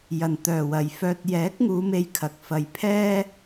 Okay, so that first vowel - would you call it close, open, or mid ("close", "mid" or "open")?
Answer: open